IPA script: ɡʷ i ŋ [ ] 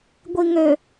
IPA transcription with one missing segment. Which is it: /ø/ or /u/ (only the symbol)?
ø